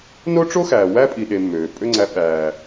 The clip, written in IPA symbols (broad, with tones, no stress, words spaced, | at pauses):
no˦ ʈ͡ʂo˦xæː˨wæ˦ pʼi˧ɗe˧mːøː˨ pʼø˦ŋ͡ǀæ˧ ɓæː˨